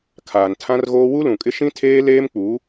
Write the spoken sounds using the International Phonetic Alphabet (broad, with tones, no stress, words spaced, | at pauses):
kʰaː˨ntʰã˦rɣoː˦ wu˦lũ˨kʼɪ˦ ʃĩ˦tʰeː˦ leː˦mk͡pu˨˦